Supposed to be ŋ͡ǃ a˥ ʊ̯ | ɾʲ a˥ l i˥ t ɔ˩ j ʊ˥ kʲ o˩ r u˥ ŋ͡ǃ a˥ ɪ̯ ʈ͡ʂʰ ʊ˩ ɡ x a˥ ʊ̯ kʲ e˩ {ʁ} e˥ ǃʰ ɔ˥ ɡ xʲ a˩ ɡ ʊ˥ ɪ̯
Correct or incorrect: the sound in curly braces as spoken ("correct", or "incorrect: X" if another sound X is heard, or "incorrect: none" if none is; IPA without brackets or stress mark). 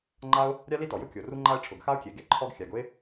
incorrect: ɡ